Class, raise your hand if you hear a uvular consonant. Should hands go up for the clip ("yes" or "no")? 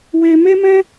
no